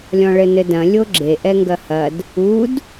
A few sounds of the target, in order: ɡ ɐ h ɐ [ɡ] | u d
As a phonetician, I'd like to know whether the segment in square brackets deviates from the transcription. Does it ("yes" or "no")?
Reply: yes